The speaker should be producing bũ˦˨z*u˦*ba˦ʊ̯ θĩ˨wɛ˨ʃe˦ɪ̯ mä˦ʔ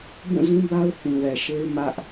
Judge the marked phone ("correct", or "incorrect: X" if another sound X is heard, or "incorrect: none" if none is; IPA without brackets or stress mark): incorrect: ũ˦